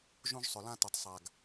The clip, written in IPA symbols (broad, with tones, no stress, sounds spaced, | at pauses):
ʒ ũ˦ ʒ sˤ ʏ˨ l ã˦ t u˨ tˤ sˤ a˨ ɡ